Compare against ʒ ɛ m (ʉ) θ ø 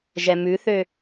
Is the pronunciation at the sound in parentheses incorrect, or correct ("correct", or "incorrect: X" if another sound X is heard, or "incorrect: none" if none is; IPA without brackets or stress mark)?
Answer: correct